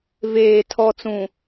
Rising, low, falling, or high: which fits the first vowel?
low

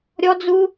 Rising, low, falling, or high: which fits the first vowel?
high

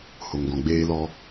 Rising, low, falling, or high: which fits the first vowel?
low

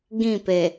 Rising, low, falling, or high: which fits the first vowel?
falling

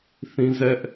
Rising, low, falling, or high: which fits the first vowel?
high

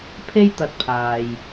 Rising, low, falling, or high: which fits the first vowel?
high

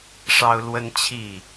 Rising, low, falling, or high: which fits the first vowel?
high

